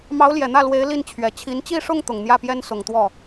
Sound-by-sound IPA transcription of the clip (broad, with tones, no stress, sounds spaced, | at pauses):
m ɑ˧˥ ʊ̯ l j ɛ˨˩ n̪ ä˥˩ l w e˧˥ ɪ̯ l i˥˩ n t͡ɕʰ ɥ ɛ˨˩ t͡ɕʰ i˧˥ n t͡ɕ i˥˧ ʂ ʊ˥˩ ŋ t̪ ʊ˨˩ ŋ n̪ j ä˥˩ p j ɛ˥ n s ʊ˨˩ ŋ t̪ w ɔ˥˩